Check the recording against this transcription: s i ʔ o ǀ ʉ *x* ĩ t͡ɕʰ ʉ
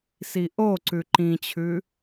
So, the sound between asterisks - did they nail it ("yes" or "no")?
no